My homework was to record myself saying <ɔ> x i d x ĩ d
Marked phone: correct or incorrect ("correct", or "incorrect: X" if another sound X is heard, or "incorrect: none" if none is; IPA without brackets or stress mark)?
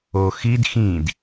incorrect: o